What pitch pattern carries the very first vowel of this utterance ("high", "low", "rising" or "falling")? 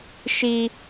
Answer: high